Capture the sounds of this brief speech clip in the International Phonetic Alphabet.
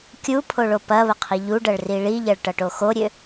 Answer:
kʲu pʰoɭopɐβə qʰiʎuɖɐɭ riɭiʎʌɭ ʈʌʈoxoɾʲø

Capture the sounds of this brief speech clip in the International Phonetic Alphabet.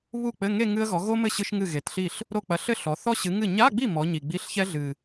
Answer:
βu˥˩k͡pɘ˧˥˧ŋe˥˧ ŋɨ˥ə̯ɣɔ˨˥ ɣo˥mɘ˥˩ ɕɨ˥ʃŋɨ˥˩ɣe˨˩tɬi˥˩ɬ | ɾo˥˧ k͡pɐ˨˥ɬɘ˥˧ ɬɔ˨˥ θɔ˥ɕɨ˨˥ ŋɨ˥˩ ɲa˧˥˧ɡ͡bi˥˩ mɔ˨˥ɲi˨˩ ɡ͡bi˧˥˧ɬçɛ˥ ɮɨ˨˩

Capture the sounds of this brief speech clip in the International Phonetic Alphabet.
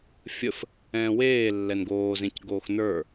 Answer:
fʲəf | ɛ̃ːweː lːɛnɡoːzẽc ɡoːxnə˞

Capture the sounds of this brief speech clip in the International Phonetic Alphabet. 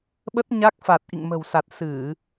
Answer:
ɓə˦˥t̚ɲa˦˥k̚fa˨˩t̚ ʔḭ˧˨ŋmə̤˨˩wsa˨˩t̚ sɨ˧˩˨

